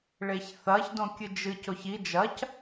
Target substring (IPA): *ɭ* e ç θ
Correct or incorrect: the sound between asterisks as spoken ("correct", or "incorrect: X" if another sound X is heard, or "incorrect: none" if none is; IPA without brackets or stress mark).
correct